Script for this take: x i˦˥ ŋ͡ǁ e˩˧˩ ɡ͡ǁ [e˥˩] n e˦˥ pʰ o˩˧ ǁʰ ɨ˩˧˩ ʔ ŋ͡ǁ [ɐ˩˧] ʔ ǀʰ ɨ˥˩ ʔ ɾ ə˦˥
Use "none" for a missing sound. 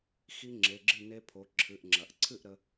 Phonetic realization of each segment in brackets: ɨ˥˩, ɐ˩˧

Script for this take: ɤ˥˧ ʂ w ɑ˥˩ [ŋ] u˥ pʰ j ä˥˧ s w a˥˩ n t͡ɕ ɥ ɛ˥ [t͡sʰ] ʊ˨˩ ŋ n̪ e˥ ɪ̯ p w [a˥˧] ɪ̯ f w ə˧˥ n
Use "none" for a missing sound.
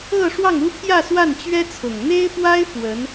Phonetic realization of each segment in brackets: ŋ, t͡sʰ, a˥

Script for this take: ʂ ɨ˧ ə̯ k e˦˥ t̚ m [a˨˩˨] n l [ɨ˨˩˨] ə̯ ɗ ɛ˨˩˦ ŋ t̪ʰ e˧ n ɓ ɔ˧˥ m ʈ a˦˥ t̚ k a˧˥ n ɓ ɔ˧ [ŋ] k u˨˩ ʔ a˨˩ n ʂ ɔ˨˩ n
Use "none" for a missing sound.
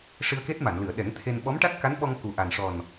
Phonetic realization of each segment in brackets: a˨˩˨, ɨ˨˩˨, ŋ

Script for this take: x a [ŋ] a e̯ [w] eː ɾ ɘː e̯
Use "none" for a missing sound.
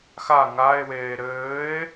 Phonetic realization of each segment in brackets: ŋ, w

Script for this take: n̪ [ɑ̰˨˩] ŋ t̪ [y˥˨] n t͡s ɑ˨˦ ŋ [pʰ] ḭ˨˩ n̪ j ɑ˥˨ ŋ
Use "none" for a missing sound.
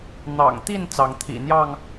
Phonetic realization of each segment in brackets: ɑ̰˨˩, i˥˨, t̪ʰ

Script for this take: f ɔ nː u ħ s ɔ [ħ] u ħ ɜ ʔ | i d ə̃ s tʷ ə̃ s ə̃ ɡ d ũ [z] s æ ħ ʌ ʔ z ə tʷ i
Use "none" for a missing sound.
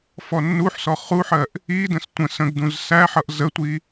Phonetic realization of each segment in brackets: χ, z

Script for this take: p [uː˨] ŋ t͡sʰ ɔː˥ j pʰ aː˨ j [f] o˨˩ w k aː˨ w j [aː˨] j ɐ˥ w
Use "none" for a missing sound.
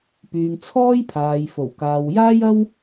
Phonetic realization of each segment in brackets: yː˨, f, aː˥

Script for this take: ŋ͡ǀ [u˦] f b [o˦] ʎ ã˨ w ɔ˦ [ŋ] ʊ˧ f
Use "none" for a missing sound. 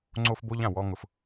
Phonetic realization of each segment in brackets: o˦, o˦, ŋ

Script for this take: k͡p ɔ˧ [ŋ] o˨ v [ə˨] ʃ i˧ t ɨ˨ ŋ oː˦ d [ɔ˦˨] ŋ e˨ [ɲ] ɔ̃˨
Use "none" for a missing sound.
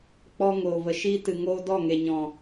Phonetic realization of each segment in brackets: ŋ, ə˨, ɔ˦˨, ɲ

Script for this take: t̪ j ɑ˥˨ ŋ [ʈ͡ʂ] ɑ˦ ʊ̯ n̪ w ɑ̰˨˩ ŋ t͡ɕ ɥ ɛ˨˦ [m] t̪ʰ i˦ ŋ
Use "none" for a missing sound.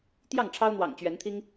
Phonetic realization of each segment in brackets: ʈ͡ʂʰ, n

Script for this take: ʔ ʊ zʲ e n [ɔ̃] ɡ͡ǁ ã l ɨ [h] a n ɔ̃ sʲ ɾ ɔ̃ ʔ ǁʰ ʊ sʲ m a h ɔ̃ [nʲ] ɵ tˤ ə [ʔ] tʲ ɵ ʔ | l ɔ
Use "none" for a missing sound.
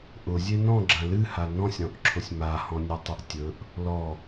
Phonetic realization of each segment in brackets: ɔ̃, h, nʲ, ʔ

